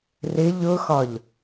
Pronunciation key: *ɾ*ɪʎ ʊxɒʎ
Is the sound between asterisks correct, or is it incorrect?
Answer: incorrect